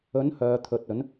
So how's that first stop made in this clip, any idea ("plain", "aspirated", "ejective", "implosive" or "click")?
aspirated